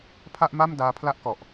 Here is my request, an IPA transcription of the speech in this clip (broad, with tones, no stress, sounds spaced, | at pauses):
pʰ a˥˩ ʔ m a˥˩ m d aː˦˥ pʰ l a˥˩ ʔ k ɔ˨˩ ʔ